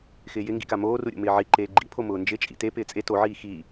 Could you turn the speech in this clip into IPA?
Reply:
x ɪː j ɪ ŋ ɡ ḭ k a m oː r u ɾʲ o̰ m ɪː ʕ i ǃ eː ɡ͡ǃ ḭ pʰ o m ʊː n d͡ʒ ɪ t͡ʃʼ ḭ t e p ɪː t͡sʼ e t o ʕ iː x i

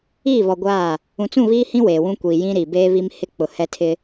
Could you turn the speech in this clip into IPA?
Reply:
iː˦˨ β ɔ˨ ɡʷ aː˦˨ | ũ˨ t͡s ũ˦˨ β iː˦ h ĩ˦ w eː˨ w ũ˦ kʷ iː˨ j ĩ˦ ɾ i˨ b eː˦ β i˦ m h ɪ˦ k͡p ʊ˨ h ɛ˦ tʰ ɪ˦

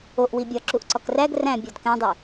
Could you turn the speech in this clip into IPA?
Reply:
o ʔ w i bʲ ɒ ǁ u ʔ ǀ ɒ k r æ ɡ r æ̃ bʲ ɒ d k æ̃ dˤ e

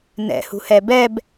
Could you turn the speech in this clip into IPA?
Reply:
n ɛ̰ h ṳ h ɛ b ɛ b

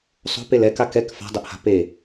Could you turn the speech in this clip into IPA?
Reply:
sˤ o̤ p e l ɛ k a k ɛ k f a̤ dˤ ɛ ʔ h a̤ p e

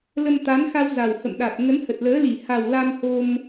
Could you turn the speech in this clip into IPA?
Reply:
l ə˧ m t̪ a˨˦ n x a˧ w z a˨˩ w h ə̰˧˨ m ɗ a˨˩ t̚ ŋ ə˨˦ n h ə˨˩ t̚ l əː˨˦ l i˧˩ h a˨˩ w l a˧ m h o˧ m

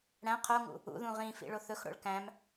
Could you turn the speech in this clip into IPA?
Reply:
ɽ æ̃ qʰ o ŋ ṵ | ṵ ð ũ ʁ ĩ f ḭ ɭ o θ ɵ x ɽ o̰ ɭ k æ̃ m

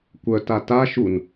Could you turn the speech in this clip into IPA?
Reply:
kʷ œ t a t a ʃ u n

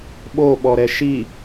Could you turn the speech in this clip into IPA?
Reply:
ɓ o ɓ ɔ ɾ ɛ ʃ i

